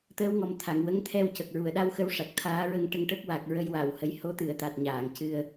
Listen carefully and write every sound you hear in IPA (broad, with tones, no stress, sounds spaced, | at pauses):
t̪ əː˧˥ w ŋ ɔ˨˩ m t̪ʰ a˨˩˨ ŋ w ə˧˥ ŋ t̪ʰ ɛ˧ w c ə˨˩ k̚ ɹ u˨˩˨ ə̯ ɗ a˧ w x ə˧˥ w ʂ a˨˩ k̚ t̪ʰ aː˧˥ ɹ ə˧ ŋ ʈ ə˧ ŋ ʈ ə˦˥ k̚ w a˨˩ k̚ ɹ ə˧ j w a˨˩˨ w h ə˨˩˦ j h o˧˥ t̪ ɨ˨˩˨ ə̯ t̪ a˨˩ t̚ ɲ aː˨˩˨ ŋ c ɨ˧ ə̯